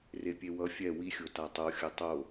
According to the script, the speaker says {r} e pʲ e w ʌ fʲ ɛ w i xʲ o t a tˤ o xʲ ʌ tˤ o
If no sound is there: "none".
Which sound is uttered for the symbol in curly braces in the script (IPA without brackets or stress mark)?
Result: r